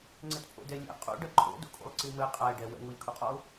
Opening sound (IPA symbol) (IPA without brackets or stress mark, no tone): ŋ͡ǀ